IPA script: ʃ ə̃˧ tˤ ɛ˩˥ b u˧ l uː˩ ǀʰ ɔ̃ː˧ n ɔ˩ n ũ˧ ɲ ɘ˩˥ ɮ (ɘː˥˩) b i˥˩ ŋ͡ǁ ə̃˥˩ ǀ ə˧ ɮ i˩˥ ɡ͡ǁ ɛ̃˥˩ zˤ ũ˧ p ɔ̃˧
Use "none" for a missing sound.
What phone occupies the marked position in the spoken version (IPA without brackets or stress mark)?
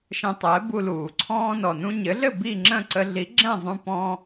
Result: ɘ˥˩